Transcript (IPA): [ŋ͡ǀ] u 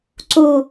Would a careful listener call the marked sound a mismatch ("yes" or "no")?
yes